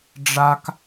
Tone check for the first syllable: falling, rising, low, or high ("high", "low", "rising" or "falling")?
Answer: high